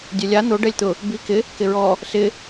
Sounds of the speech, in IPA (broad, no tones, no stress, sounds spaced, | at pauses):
dʲ ɛ lʲ a n̪ o ɖ ɛ lʲ t̪ ʊ | b i k ɪ | k ɪ ɹ ɔ | s ɪ